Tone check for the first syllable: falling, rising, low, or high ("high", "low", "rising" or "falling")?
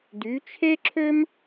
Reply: rising